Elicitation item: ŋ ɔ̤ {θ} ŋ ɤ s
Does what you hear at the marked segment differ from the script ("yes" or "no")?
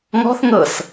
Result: no